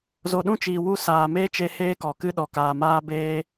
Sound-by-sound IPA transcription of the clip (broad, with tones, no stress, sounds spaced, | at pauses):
z o˨ ɗ ũ˦ t͡ʃ iː˨ w u˦˨ s aː˨ m eː˦ t͡ʃ e˧ h eː˦ k ɔ˨ k ɨ˦ ɗ ɔ˨ k aː˨ m aː˦ b eː˦